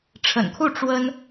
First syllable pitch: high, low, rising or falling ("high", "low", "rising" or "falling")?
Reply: low